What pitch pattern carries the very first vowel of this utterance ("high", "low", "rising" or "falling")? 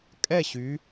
falling